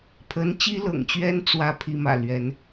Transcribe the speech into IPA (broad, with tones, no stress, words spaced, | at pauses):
pʰə˧˥nt͡ɕi˥lɤ̰˨˩ŋt͡ɕɥɛ˥n t͡swä˥˩ pʰi˧˥mä̰˨˩ lɥɛ˧˥n